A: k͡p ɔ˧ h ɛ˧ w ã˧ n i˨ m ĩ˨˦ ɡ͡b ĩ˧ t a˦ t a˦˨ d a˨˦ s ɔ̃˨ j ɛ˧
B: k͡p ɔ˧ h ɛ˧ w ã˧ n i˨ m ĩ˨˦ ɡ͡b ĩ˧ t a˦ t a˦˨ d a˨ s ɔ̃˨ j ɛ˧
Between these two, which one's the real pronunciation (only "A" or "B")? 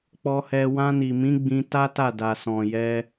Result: B